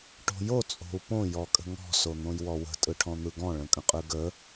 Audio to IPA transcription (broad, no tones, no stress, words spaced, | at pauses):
ʈo̤jo t͡sʼo̤u̯põ jɔkʼə̤ŋɔ̤ son̪õjwɔwə̤ tʼɯʈʰɔ̃n̪ɯɡɔ̃ ɭə̃kʼə̃qʼɯɡə